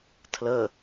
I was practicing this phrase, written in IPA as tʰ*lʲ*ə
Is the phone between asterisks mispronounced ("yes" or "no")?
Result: yes